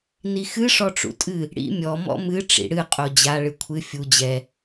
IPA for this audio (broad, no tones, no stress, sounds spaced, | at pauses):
n i x ɨ ʂ ɔ ʈ͡ʂ ṵ tʼ ɨ | ɽ ḭ mʲ ɔ m ɔ̰ m ɨ ʈ͡ʂ ḭ ɽ ɨ qʼ o d͡ʑ a ɭ ɨ kʷʰ ɨ fʲ u d͡ʑ ɛ